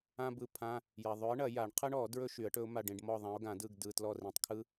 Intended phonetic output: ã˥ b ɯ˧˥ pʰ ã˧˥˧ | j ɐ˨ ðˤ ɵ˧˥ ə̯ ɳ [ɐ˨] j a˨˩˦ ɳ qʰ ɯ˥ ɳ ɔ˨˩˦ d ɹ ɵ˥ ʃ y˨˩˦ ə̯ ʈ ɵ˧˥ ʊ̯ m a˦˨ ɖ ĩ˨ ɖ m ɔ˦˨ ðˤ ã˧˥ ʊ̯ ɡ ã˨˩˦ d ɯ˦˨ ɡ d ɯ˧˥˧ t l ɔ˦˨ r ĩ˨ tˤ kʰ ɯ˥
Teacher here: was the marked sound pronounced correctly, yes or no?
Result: no